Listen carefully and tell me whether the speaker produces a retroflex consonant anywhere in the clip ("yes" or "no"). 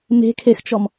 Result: no